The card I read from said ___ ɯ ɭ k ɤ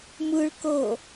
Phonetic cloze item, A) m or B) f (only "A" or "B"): A